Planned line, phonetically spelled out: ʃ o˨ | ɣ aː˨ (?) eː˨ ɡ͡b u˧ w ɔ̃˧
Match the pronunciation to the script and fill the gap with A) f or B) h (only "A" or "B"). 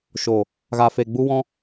A